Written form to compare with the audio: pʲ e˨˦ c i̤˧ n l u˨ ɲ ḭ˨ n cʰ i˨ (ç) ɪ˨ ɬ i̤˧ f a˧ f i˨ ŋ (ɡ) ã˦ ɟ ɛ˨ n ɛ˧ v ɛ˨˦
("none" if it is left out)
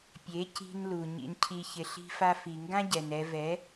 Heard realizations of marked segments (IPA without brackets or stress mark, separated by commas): ç, ɡ